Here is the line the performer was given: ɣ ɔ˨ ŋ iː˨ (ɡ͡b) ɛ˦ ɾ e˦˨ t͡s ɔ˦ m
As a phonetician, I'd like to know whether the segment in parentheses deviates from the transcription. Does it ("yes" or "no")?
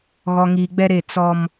no